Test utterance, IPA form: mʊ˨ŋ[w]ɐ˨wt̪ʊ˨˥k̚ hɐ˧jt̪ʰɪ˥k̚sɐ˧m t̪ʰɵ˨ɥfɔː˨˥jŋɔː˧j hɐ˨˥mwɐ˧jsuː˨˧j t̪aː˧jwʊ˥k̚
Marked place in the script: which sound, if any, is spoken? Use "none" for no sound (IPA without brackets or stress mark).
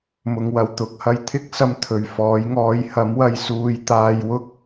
w